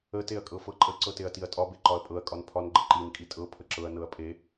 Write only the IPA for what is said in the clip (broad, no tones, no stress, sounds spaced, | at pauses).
ə t e ɐ̯ kʼ ɤ f ɤ ǃʼ ə ǀ ɤ t e ɐ̯ t i ɐ̯ tʼ ɒ b e ǃ ɒ ɐ̯ pʼ ɤ ɐ̯ kʼ ɒ n pʰ ɒ n ɡ͡ǃ ə ǃ i n kʼ i tʼ ɤ pʰ ə ǁ ɤ ɐ̯ n ɤ ɐ̯ pʼ e